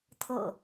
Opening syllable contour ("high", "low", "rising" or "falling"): low